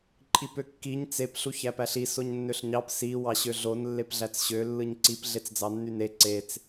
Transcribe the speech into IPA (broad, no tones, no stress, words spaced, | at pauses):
ǃʼipøkːiɲ t͡sep ɬuçæpæɬi soɲnːøɬɲɑp si wɑɕøɮon lːepɮæt͡sɕø lːɯɲǀip ɮet͡sd͡zɑnːyne ǀet͡s